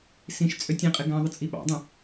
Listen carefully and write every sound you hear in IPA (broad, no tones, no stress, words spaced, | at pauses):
sĩʃ t͡sʼøtʲĩqʼɪ ɡãðˤə t͡sʼiɓɑ̰dˤə̃